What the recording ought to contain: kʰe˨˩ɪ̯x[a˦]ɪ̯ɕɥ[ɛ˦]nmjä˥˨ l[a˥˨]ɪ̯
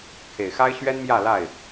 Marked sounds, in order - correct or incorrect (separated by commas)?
correct, correct, correct